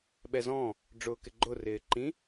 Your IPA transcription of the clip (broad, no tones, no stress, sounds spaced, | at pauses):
ɓ ɛ z ɔ̃ | ɖ͡ʐ ʊː k ɪ ɡ͡ǃ ʊ r ɪː ǃ ĩ